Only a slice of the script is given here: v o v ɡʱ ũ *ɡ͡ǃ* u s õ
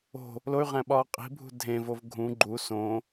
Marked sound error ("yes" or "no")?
no